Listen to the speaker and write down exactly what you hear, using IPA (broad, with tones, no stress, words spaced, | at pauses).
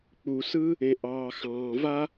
k͡pu˩sɯ˥ | ẽ˩ʔɑː˩xɑ̃ː˩va˥